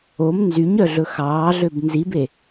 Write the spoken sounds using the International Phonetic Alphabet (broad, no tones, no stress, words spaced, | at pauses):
om nzyɲœɮɵ xɑːɮøb nzibe